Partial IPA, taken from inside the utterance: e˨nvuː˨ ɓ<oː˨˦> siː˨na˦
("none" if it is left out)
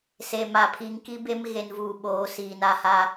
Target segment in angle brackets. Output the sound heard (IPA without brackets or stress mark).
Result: oː˨˦